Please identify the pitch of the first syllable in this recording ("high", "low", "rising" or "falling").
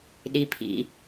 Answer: low